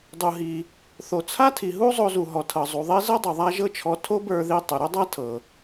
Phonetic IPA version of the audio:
dˤ u˧ ɦ i˧ | θ o˨ t͡sʰ a˦ tʰ i˨ ɦ u˦ zˤ o˧ z u˨ ɦ ɔ˨ tʰ ɤ˨ zˤ u˨ ðˤ e˦ z ɤ˦ dˤ o˨ ðˤ a˦ ʒ ɤ˦ t͡ʃʰ ɔ˧ tʰ o˦ b ə˞˧ ð i˧ tˤ ʏ˨ ɾ ʏ˦ dˤ a˦ tʰ ɤ˨

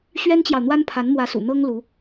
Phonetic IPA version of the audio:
ɕ ɥ ɛ˥ n t͡ɕ j ɑ˨ ʊ̯ n̪ w a˥ n pʰ a˧˥ n m w ä˧˥ s ṵ˨˩ n̪ ɤ˥ ŋ l u˧˥

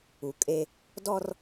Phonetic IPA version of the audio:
u˨ kʼ e˦ | d ɔ˦ r

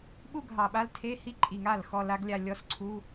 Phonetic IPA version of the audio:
ɓ u˥˧ ɡʱ ɑ˨˩ ɓ a˦˥ l tʰ e˧˥˧ h i˦˥ ǃʼ i˨˩ ŋ a˥˩ l x ɔ˥˧ l a˦˥ ɡ lʲ a˥˧ lʲ ɔ˧˥˧ s ǀʰ u˧˥˧

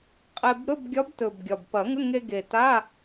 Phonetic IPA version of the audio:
qʼ e˧ b ɾ ɵ˧˥˧ b ɡʲ ɒ˧˥ b t ɵ˨˩ b ɡʲ ɒ˨˩ b p ɐ˨˩˦ ŋ ə˧˥˧ ŋ e˧ ɡ e˨˩ t a˧˥˧

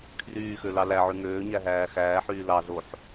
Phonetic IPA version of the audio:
kʰ r yː x ø l ɑ l æ ʕ y ŋ øː ɲ æ ɦ æː x æː ħ yː l ɑ ɮ o ħ

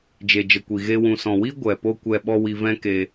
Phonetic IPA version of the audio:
d͡ʒ e˨ d͡ʒ ə˨ kʷ i˨ ɣ e˧ w ũ˨ s ɔ̃˨ w i˦ ɡʷ ɛ˨ p o˦ kʷ ɛ˦ ɓ ɔ˦ w i˧ v ɛ̃˦ k e˧

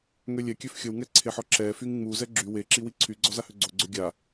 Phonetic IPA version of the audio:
ŋ ø lʲ ɛ kʲ ø f xʲ ə w ŋ ɛ ǀʰ e ħ ɔ ǁ ɛ f y ŋ ŋ͡m u z ɛ ɡ͡ǁ y w e ǁ i w i ǀʰ y ɡ͡ǀ ɔ z a h ø ɡ͡ǀ o ɡ͡ǀ ø ɡʲ a

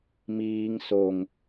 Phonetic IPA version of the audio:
m iː ŋ s o ŋ

